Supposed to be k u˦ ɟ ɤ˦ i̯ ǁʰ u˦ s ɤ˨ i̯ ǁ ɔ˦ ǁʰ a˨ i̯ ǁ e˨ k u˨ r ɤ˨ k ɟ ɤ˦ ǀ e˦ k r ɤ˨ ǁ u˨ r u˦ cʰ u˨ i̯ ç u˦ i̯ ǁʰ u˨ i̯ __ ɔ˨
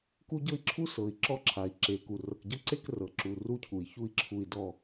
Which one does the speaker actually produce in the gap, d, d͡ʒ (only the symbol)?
d